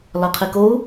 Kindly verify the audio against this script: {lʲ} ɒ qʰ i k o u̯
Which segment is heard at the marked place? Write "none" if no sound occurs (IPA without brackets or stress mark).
l